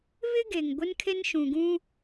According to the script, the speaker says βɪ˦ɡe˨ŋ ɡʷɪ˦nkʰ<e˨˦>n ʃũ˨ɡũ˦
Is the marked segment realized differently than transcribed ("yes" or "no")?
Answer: yes